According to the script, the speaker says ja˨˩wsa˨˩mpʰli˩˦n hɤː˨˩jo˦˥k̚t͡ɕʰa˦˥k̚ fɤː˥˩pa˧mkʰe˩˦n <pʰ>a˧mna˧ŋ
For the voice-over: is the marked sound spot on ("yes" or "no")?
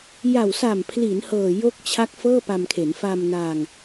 no